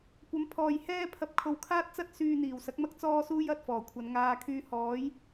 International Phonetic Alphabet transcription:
kʷɐ˨˥mpʰɔː˨j hɛː˥pʰɐ˧p̚ kʰo˧wkʰaː˥t̚t͡sɐ˥t̚ syː˧n̪iː˨˩wsɐ˨˥k̚mɐ˥k̚ t͡sɔː˥suː˥j ɐ˧t̚fɔː˨˩kʷʰɐ˨˧nŋaː˧ kʰyː˧hɔː˨˥j

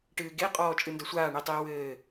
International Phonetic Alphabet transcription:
ʈɨːɡe qʼɔːt͡ʃʼɨndɐsʷaː ɳitˤiːwɘː

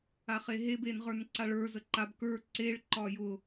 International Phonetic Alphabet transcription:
aχeɦeb enʁə˞nǀaɭə˞ zəǃab kə˞ ǀeɭ ǃɒjʊ

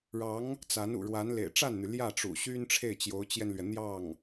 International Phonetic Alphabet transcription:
ɻɑ˧˥ŋ | t͡sa˧˥nṵ˨˩ɻwa˧˥n lḛ˨˩ɪ̯ʈ͡ʂa˥˩nn̪y˩ ljä˥˩ʈ͡ʂṵ˨˩ɕy˥n ʈ͡ʂʰe˥˩ɪ̯t͡ɕjo˧˥ʊ̯t͡ɕjɛ˧nlɥɛ˩ n̪jɑ˥˩ŋ

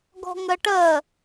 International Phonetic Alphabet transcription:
ɡɔ̤ŋɜʈɜ

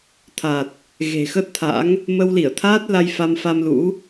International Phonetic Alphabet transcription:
t̪ʰa˨˩t̚ | ɣe̤˨˩xə˦˥t̚t̪ʰa̰˧˥ŋ | mə˧wli˧˩ə̯t̪ʰaː˦˥t̚ la˧jfa˧mfa˧m lṵ˧˥

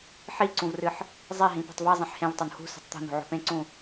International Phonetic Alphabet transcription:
ħiǀũvrɨħ | zˤeɦĩ pṳtˤve zˤẽħhẽvtˤon hṳ se̤tˤt̪o̤n o̤ʕo̤pẽǀũ

